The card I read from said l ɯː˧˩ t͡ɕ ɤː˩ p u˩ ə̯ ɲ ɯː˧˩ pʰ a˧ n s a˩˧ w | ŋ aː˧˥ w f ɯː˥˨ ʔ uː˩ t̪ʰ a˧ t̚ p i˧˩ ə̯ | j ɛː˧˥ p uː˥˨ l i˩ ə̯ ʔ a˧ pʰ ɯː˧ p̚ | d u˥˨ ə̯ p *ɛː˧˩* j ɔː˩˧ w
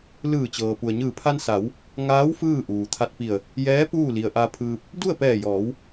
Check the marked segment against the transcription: correct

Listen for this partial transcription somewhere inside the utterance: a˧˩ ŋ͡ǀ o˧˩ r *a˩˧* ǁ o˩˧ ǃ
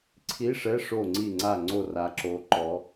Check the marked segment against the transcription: correct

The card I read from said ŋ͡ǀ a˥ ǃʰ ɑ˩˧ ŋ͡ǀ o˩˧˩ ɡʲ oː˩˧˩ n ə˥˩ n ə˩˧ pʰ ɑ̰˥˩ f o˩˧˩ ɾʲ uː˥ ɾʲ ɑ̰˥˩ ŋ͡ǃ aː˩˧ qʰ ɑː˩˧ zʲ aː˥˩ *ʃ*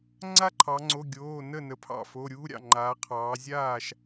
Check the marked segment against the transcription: correct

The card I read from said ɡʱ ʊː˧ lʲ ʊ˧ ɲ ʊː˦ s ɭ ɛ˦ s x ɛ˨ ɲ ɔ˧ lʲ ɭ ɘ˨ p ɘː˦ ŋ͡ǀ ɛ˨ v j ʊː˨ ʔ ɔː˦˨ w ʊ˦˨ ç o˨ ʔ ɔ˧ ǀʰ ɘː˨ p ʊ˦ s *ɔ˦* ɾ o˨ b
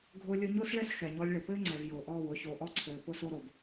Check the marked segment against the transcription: incorrect: o˦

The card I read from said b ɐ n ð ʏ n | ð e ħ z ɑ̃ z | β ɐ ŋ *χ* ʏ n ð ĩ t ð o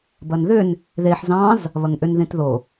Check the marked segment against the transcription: incorrect: ʔ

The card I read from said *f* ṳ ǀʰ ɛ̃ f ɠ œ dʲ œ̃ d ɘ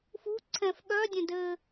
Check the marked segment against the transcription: correct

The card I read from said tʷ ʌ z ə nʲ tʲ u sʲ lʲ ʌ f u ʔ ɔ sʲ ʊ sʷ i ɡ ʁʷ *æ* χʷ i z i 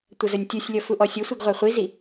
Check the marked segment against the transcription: correct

